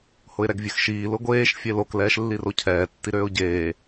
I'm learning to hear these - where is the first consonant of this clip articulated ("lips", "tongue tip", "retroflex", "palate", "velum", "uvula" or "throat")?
throat